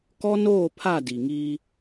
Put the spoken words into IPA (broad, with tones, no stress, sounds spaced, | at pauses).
k ɔ˦ n oː˦˨ pʰ a˦˨ d i˨ ŋ i˦